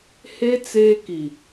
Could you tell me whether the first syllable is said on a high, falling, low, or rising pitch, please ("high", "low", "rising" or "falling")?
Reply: high